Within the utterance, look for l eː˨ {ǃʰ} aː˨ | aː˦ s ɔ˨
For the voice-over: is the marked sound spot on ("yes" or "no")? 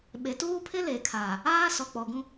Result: no